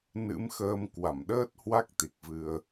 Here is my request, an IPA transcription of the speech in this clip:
n ɨ̰˧˥ m x əː˧ m k w a˧˩ m ɗ əː˦˥ t̚ h w a˦˥ k̚ t̪ i˨˩ k̚ v ɨ˧ ə̯

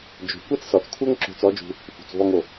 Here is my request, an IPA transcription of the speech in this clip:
d͡ʒ o̤˩ kʷ ɛ˥ t͡s s ɔ˩˧ t͡s kʷʰ ɤ˥ ŋ ǁ o̤˧˥ t͡s ɔ˧˥ d͡ʒ ṳ˧ | f ṳ˩ t͡s v ɔ˧ ŋ o˩

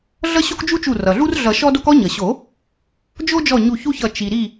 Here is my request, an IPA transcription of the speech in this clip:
ɮ ʌ˦ ɕ o˦ k d͡ʒ u˦ t͡ʃ u˧˩ r ʌ˩ ɮ u˦ r ɮ ʌ˨˩˦ ʃ ɔ˦ d o˦ k ɔ˦ ɲ ʌ˩ ɕ o˨˩˦ | d͡ʒ o˦ d͡ʒ ɔ˧˩ ɲ u˧˩ ç u˦ ç ʌ˧˩ t͡ʃ i˩ ɾ i˧˩

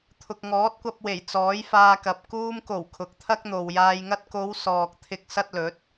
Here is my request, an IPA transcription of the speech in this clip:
t̪ʰ ʊ˨ k̚ ŋ ɔː˨˥ t̚ kʷ ɐ˧ p̚ w e˨˩ j t͡s ɔː˨˥ j f aː˧ k ɐ˨ p̚ k uː˧ m k o˨˩ w kʰ ʊ˨ k̚ t̪ʰ ɐ˥ k̚ n̪ o˨ w j aː˧ j ŋ ɐ˥ t̚ k o˨˧ w s ɔː˨ k̚ t̪ʰ ɪ˧ k̚ s ɐ˥ t̚ l ɵ˨˥ t̚

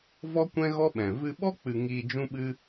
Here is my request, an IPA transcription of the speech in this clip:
v ɔ˦ kʷ ɛ̃˦ ɣ ɔ˦ ɓ ɛ̃˨ v ɨ˧ ɓ ɔ˦ k͡p ɨ˧ ŋ iː˧ d͡ʒ ũ˦ ɓ ɨ˦

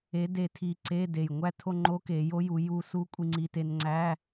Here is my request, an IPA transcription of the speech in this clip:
e˧˥ d e˧ tʰ i˧ ǀ e˧˥˧ d e˨˩ j ŋʷ æ˥˧ tʰ o˥˧ ŋ͡ǃ o˧˥ k e˩˧ j o˧˥ j u˩˧ j u˧ s u˧˥ kʷʼ i˧ ŋ͡ǀ i˧ t e˧ n ŋ͡ǀ æ˧˥˧

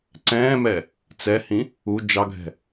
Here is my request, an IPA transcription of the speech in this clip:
ǀ ɛ̃ː m ɛ | t͡s ɛ h ĩ | u d͡ʒ ɑ ɡʱ ɛ̤

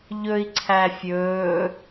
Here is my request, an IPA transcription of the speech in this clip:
ʎ ɵ i̯ ǀʰ æ fʲ ɵː

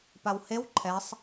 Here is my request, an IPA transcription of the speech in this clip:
p a w h e w ǃʰ ɛ sˤ

